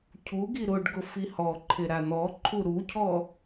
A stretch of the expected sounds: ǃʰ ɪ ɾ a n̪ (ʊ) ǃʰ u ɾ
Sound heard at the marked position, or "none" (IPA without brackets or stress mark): ɔ